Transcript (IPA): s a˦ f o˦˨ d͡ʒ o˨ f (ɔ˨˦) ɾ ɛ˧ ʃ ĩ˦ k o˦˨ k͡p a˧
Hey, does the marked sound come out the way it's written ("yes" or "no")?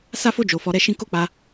yes